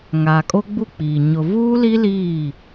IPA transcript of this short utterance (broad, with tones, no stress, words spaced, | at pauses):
ŋaː˨kʼo˦ɡ͡bu˦˨k͡piː˨ ɲʊ˨vuː˦li˦ liː˦˨